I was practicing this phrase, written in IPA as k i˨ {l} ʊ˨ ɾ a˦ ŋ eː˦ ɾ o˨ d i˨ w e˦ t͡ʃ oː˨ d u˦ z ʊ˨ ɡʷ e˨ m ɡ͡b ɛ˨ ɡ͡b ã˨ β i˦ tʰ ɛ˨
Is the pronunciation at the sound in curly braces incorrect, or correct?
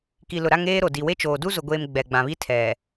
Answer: correct